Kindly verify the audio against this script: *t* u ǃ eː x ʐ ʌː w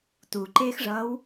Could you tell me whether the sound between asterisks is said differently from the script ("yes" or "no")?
no